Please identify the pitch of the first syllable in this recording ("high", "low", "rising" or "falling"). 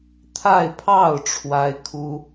falling